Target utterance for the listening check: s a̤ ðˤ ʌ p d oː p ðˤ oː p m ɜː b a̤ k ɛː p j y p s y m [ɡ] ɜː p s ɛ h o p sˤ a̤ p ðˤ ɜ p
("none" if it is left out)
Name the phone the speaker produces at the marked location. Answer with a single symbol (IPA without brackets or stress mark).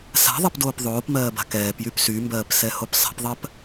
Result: b